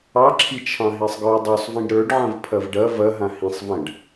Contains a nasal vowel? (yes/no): yes